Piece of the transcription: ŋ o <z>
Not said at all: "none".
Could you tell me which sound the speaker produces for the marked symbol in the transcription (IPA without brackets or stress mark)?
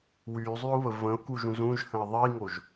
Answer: ʒ